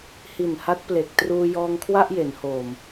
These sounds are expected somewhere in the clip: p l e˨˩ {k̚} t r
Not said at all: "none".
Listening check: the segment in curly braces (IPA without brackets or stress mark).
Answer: k̚